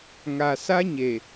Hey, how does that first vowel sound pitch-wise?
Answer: low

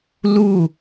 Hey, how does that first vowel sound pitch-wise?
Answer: falling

